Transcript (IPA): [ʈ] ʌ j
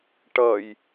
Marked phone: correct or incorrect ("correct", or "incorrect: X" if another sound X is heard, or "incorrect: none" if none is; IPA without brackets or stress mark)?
correct